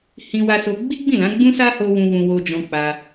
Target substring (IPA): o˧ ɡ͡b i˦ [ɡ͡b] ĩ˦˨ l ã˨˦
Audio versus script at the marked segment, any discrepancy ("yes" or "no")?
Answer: no